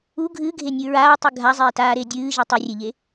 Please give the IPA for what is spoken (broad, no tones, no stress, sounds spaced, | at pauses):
u ɡʱ ɨː ɡʱ e nʲ ɨ ɹ aː tˤ ɨ ɡʱ a zˤ eː t aː ɾ eː dʲ ɨː ʒ ɨ tˤ ɨ rʲ e ʎ e